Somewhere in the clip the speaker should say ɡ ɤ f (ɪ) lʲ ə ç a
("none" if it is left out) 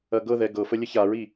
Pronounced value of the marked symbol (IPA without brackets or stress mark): ə